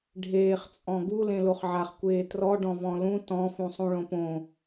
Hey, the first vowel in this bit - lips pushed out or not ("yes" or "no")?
no